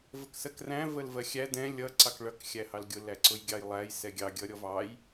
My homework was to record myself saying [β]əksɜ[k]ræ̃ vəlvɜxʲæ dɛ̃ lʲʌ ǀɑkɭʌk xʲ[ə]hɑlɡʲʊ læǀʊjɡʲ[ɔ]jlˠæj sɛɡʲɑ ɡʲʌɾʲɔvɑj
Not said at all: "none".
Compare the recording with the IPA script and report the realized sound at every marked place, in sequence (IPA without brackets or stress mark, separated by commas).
v, k, æ, ɑ